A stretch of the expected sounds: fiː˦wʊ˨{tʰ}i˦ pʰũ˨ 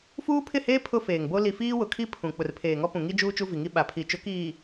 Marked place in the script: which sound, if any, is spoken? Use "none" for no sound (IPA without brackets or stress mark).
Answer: kʰ